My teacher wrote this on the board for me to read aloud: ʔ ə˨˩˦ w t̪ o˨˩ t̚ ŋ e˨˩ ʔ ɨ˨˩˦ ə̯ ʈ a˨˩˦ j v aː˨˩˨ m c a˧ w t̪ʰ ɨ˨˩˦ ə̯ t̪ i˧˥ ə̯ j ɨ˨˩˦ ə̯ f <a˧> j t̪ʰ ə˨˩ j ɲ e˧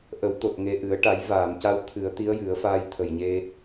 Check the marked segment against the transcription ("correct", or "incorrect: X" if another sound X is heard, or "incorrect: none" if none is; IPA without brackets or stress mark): incorrect: aː˧